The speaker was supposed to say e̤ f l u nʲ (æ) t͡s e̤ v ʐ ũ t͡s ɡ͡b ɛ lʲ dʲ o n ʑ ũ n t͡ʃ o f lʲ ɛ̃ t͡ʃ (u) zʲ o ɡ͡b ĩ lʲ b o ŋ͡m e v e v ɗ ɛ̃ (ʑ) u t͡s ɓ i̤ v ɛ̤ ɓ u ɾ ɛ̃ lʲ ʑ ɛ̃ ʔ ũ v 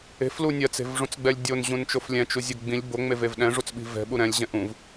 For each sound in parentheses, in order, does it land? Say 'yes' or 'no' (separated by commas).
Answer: no, yes, no